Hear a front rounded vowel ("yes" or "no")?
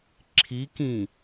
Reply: no